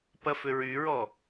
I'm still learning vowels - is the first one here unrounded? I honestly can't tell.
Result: yes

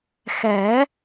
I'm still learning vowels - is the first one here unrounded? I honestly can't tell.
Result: yes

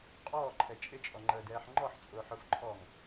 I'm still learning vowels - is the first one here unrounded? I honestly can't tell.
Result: no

